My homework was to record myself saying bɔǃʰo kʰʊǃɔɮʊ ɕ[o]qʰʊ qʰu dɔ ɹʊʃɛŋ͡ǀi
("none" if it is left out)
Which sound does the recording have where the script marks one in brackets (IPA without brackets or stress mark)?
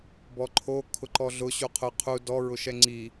u